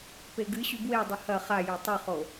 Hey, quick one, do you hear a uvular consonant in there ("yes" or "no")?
yes